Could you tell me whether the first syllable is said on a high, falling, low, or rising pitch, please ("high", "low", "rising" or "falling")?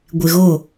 low